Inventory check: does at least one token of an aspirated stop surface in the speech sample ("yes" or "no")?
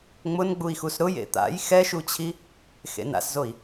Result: yes